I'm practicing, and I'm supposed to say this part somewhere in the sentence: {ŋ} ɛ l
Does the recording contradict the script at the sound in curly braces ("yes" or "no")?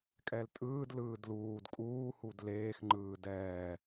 yes